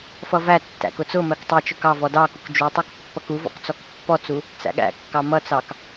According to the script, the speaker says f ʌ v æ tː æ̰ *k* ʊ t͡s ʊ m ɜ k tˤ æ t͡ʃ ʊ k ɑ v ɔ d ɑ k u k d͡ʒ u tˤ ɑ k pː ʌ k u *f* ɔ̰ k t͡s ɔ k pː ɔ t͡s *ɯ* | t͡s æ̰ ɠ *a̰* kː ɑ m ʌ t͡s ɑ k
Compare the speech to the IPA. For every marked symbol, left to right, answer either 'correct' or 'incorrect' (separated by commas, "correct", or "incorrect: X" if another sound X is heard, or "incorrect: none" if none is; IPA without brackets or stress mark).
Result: correct, incorrect: v, incorrect: u, incorrect: æ̰